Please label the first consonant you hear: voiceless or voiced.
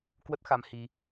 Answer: voiceless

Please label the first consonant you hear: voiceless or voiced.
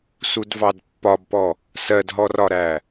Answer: voiceless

